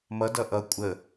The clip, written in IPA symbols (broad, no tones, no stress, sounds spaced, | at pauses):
m ʌ d ʌ ʔ ʌ kʷʼ ə